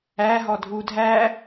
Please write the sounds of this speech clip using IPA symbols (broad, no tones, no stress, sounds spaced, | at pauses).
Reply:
æ ɦ ɔ dʱ u dʱ æ